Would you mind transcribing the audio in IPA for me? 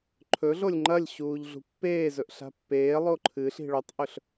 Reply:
ǃʰ ɵ ɮ o lʲ ŋ͡ǃ ɐ lʲ ɕ uː ʎ ɮ ṳ pː eː z ɵ ʔ ɬ a̤ pː eː lˠ o ǃʰ ɨ ɬ i̤ ɭ o tˤ ʔ ɵ ɬ

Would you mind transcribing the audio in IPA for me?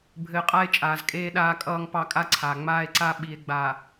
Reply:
bʱ ɘː˨ qʼ a˦ e̯ t͡ʃʼ aː˨ z kʼ eː˦ ɗ aː˦ kʼ ʌː˦ ŋ p ɑ˦ kʼ a˦ ǀʰ aː˨ ŋ͡m aː˦ e̯ ǀ a˦ ɓ i˨ e̯ ɡ͡b a˨

